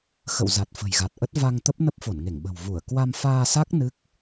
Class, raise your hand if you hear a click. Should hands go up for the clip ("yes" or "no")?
no